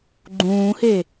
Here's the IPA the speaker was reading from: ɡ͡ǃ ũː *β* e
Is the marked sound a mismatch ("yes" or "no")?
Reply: yes